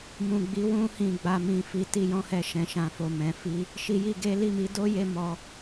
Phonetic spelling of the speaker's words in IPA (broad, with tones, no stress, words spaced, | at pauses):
mũ˨ɡ͡bi˨˦wũ˧hĩ˨ ɡ͡ba˧mĩ˧fi˧ ti˧jɔ̃˦hɛ˧ ʃɛ̃˨ʃã˨fo˨ mɛ̃˨fi˧ | ʃi˧ji˧ɡe˦ li˦˨mi˨˦do˦je˧ mɔ˧